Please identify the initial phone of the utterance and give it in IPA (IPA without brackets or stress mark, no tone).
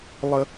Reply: lˠ